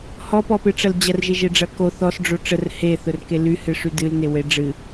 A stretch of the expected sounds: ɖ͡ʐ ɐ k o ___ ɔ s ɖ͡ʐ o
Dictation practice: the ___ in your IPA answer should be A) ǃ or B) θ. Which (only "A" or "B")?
B